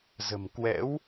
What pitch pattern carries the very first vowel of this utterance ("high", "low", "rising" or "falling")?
low